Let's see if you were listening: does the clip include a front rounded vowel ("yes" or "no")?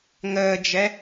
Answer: no